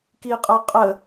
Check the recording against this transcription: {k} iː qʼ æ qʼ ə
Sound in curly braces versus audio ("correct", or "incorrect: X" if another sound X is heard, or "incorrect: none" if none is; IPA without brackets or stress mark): correct